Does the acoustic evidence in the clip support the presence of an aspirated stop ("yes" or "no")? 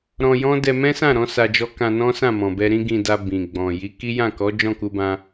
no